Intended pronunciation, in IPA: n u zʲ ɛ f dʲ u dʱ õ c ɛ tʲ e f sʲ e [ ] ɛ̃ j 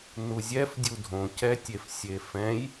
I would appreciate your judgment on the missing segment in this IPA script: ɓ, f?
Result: f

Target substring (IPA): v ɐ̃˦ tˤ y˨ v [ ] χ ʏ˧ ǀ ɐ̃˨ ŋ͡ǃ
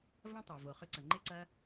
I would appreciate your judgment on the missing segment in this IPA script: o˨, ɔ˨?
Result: o˨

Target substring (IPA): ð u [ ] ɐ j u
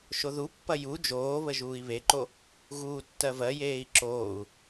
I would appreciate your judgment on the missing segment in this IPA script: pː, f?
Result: pː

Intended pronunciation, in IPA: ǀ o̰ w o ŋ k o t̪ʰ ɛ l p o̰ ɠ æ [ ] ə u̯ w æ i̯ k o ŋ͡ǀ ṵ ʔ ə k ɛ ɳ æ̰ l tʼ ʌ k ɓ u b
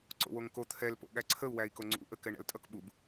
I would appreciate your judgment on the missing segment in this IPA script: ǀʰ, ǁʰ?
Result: ǀʰ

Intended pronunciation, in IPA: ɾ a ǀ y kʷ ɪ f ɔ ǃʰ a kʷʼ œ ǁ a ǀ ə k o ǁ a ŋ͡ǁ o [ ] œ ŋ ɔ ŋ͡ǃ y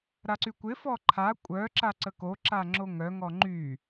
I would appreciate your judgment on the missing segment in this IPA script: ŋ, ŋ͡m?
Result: ŋ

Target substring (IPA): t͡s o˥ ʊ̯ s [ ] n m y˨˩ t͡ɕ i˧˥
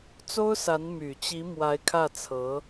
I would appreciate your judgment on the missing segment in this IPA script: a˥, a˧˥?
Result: a˧˥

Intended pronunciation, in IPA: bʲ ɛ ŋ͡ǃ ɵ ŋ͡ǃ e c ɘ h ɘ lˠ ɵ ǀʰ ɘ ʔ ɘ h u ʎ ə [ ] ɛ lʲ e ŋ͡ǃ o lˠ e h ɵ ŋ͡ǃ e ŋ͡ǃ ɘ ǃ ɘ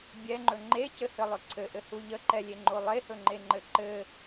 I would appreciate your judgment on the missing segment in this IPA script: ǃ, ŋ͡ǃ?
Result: ǃ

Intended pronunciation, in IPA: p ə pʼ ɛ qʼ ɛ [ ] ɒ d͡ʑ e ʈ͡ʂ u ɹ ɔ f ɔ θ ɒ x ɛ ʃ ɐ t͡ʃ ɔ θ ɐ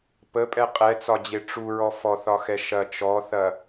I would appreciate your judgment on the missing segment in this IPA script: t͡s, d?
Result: t͡s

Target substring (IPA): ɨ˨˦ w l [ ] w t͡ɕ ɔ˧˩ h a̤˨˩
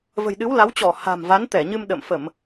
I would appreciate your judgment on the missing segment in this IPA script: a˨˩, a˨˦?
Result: a˨˦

